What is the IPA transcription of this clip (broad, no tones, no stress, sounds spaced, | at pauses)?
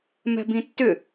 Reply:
m ɛ̤ b ĩ tː ʏ